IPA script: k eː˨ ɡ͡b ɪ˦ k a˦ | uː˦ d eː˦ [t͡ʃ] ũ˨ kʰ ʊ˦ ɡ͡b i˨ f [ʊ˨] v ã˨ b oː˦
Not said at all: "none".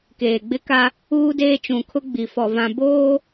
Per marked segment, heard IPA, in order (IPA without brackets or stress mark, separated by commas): t͡ʃ, ɔ˨